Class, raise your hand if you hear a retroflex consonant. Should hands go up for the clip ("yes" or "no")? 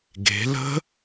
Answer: no